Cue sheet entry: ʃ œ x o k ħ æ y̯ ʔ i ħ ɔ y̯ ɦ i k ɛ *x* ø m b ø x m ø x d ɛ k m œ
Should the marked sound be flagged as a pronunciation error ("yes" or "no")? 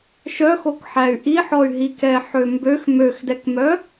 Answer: yes